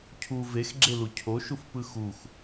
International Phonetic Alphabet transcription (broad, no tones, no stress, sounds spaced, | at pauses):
cʰ u v e x ɡ͡ǁ e l u cʰ o ʃ u f p ɯ x u x